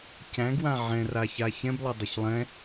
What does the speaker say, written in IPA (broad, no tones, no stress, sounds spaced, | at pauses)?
c æ̃ ɡ w ã ʕ ɛ̃ r a ç a ç ɛ̃ b lˠ ə dˤ ə ç lˠ ɛ̃